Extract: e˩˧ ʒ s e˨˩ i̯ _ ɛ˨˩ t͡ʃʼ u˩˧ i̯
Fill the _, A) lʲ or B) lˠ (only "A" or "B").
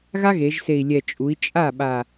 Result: A